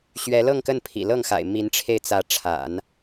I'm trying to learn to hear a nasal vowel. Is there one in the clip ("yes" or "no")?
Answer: no